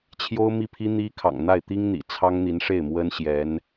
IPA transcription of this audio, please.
t͡ɕʰ j o˥ ʊ̯ m i˥˩ pʰ i˥ n̪ i˥ kʰ ɑ̰˨˩ ŋ n̪ a˥˩ ɪ̯ t̪ i˥ ŋ n̪ ḭ˨˩ t͡sʰ ɑ˥ ŋ n̪ i˧˥ n ʂ e˥˩ ɪ̯ m w ə˥ n ɕ j ɛ˧˥ n

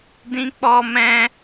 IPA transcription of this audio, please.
d ĩ˦ k͡p ɔ˦ m ɛ̃˦

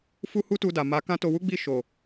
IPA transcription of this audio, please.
f u˦ h u˦ t u˧ d a˨ m a˨˦ k ã˦ t o˧ w u˦ ɡ͡b i˦˨ ʃ o˨

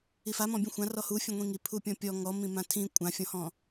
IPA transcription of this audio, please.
i f a m ɔ̃ bʲ ũ xʷ ã r ɔ h u fʲ ũ ŋʷ ĩ ŋ i pʰ u pʲ ɔ̃ pʲ ɔ ŋ ɔ m ĩ m ã tʰ ĩ kʷʼ ã fʲ ɔ̃ h ɔ̃

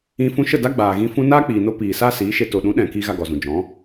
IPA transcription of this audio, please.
ĩ˧ f ũ˧ ʃ ə˦˨ d a˦ ɡ͡b aː˨ ɣ ĩ˧ f ũ˧ n aː˦ k͡p iː˨ n o˧ p iː˨ s a˦ s iː˨˦ ʃ e˧ t o˨ ɗ ũ˨˦ ɗ ɛ̃˨ k i˧ ɣ a˧ ɡ ɔ˨ z ũ˨ d͡ʒ ɔ̃˨˦

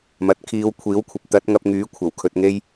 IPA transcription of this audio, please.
m ɐ˨ t̚ kʰ iː˨˧ w kʷʰ iː˨˥ w kʷʰ ɐ˨ p̚ t̪ ɐ˨˥ t̚ ŋ ɐ˧ p̚ ŋ yː˨˥ kʷʰ ɐ˨˩ w kʰ ɵ˨ t̚ ŋ e˧ j

